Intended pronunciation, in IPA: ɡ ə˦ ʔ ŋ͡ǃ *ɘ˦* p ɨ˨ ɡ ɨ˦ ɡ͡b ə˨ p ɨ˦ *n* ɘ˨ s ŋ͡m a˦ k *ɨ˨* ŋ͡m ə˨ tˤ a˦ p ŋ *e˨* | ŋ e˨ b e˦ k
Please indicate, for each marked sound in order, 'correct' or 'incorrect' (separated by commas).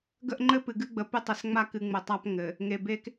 correct, incorrect, correct, incorrect